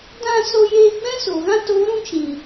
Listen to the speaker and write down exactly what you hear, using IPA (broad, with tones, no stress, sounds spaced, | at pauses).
d ã˦˨ s o˧ j eː˧ ɡ͡b ɛ̃˦ s o˨ ɣ ã˦ t oː˨˦ ɾ ũ˦ t͡ʃ ĩ˨